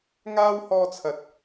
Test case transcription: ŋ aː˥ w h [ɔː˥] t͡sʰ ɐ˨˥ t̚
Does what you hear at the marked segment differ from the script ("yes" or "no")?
yes